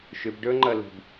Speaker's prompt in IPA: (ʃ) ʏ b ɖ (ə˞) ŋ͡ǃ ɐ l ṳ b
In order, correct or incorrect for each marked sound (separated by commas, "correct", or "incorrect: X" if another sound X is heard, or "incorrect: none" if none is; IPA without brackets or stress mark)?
correct, correct